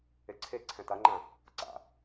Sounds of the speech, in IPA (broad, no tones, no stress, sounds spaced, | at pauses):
e ǀʰ e ǀʰ ɛ̃ t a ŋ͡ǃ ã | ǀ a̰